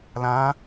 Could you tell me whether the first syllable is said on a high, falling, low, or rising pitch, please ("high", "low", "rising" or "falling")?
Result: rising